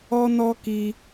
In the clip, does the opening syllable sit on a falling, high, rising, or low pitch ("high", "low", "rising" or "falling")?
high